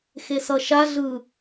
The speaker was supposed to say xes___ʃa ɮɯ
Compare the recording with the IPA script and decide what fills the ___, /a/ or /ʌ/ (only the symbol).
ʌ